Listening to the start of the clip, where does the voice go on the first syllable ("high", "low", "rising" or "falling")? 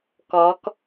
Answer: rising